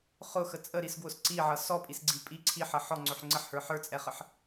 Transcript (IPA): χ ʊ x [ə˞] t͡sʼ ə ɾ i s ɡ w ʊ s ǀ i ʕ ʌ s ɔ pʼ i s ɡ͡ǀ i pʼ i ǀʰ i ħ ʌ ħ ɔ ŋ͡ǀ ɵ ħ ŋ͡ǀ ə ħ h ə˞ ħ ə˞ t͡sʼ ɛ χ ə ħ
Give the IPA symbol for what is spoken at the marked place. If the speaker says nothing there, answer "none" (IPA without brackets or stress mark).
ə